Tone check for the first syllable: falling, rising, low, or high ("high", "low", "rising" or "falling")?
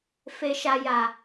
low